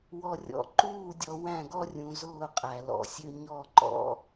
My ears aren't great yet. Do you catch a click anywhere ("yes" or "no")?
yes